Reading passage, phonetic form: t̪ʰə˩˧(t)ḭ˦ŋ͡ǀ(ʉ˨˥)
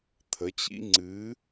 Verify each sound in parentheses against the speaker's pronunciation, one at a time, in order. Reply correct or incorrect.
incorrect, incorrect

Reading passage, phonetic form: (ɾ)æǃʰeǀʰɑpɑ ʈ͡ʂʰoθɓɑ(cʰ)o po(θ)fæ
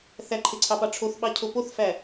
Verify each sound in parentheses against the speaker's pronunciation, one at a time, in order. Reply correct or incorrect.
incorrect, correct, correct

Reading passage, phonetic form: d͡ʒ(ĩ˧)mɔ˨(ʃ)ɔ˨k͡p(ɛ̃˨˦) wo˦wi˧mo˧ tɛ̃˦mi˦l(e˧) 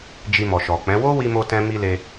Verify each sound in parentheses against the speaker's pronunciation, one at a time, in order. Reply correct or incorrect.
incorrect, correct, correct, correct

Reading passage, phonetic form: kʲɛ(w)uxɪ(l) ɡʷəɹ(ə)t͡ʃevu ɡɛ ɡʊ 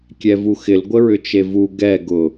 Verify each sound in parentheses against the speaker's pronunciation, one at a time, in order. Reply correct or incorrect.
incorrect, correct, incorrect

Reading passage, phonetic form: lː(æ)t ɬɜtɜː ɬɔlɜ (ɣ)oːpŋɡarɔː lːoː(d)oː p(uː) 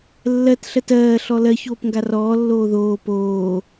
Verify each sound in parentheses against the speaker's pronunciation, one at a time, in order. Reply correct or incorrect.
incorrect, incorrect, incorrect, incorrect

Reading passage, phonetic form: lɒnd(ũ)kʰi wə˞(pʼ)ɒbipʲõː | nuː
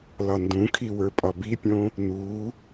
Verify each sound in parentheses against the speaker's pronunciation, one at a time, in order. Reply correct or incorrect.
correct, correct

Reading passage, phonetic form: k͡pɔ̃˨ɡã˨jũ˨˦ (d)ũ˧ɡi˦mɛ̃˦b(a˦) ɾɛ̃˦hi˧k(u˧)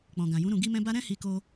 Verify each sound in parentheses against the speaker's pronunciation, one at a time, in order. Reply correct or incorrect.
incorrect, correct, incorrect

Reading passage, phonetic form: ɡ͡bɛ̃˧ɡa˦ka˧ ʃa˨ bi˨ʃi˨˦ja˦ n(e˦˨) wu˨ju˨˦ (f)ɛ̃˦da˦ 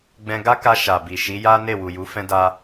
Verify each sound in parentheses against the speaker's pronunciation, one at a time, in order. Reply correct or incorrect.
correct, correct

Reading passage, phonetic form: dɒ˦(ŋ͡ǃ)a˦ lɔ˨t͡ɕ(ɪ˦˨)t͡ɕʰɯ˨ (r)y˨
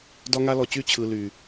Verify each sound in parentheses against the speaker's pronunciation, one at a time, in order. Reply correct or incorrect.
incorrect, incorrect, incorrect

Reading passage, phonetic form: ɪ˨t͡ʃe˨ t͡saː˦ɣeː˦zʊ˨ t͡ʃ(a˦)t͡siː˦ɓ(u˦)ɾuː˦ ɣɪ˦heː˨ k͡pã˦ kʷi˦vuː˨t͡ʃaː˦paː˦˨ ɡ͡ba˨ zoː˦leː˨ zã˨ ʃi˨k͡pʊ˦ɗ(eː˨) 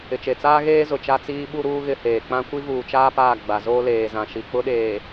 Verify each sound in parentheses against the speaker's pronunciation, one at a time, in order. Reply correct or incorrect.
correct, correct, correct

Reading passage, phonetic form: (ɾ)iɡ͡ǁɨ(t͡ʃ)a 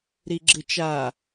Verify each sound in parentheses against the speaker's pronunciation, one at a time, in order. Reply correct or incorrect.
correct, correct

